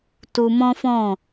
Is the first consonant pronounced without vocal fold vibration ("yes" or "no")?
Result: yes